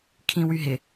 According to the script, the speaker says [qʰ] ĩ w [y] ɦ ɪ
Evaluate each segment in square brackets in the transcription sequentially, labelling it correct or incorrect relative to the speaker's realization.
incorrect: kʰ, correct

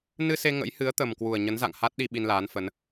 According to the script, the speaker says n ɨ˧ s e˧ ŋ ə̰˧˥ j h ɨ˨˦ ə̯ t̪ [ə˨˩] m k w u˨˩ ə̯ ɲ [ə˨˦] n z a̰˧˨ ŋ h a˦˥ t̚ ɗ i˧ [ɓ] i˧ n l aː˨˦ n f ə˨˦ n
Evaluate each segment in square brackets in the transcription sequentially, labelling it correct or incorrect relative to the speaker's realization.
correct, correct, correct

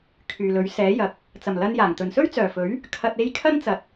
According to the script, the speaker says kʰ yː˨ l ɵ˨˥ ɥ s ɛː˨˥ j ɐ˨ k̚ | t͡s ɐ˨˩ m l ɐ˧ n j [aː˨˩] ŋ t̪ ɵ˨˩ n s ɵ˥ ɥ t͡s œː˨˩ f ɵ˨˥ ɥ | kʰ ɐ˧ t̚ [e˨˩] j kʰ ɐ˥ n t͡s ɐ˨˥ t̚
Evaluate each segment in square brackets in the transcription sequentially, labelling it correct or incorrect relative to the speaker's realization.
correct, incorrect: e˥

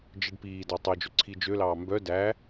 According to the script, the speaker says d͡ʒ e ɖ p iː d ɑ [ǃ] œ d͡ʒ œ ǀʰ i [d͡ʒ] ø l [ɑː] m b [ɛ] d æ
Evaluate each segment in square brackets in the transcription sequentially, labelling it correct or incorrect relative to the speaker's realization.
incorrect: tˤ, correct, correct, incorrect: œ

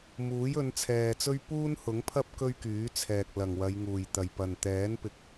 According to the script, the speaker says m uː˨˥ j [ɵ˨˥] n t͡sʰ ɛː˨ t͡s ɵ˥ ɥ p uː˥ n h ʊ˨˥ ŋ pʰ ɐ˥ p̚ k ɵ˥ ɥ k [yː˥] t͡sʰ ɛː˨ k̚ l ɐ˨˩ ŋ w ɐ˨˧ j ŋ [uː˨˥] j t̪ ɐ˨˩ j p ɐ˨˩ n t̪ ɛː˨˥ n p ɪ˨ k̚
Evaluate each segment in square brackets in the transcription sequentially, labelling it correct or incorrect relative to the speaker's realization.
incorrect: ɵ˨˧, incorrect: yː˨˥, incorrect: uː˨˩

